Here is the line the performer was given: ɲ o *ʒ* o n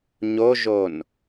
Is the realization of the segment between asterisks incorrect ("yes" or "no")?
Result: no